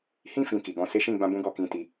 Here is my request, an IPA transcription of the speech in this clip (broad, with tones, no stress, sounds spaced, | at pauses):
h ĩ˦ f ĩ˧ k i˨ ɡ ɔ̃˨˦ s e˦ ʃ ĩ˦˨ b ã˧ b ũ˦ ɡ ɔ˦˨ k ĩ˧ t i˧